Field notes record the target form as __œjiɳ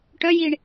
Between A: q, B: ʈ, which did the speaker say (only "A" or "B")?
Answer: B